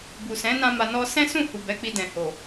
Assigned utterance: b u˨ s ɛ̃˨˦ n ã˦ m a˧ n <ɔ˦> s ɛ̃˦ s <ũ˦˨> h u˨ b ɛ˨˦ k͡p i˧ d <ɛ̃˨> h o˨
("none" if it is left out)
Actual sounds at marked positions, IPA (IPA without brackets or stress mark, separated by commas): ɔ˦, ũ˦˨, ɛ̃˨